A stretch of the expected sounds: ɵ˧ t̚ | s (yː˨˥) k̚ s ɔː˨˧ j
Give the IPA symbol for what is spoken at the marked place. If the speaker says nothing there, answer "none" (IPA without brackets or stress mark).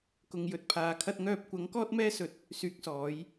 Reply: yː˨˥